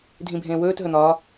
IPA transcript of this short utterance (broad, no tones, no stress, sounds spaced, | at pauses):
dʱ ĩ bʱ ẽː w ɵː t ɦ ɵ n̪ ɒ